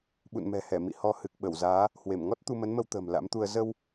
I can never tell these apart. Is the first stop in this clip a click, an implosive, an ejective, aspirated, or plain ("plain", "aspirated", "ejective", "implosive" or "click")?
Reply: implosive